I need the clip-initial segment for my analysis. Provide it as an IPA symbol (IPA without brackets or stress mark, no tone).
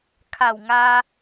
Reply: kʰ